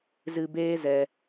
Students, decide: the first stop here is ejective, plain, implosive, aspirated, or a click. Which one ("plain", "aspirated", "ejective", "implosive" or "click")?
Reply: plain